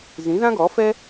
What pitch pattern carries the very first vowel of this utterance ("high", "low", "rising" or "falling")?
rising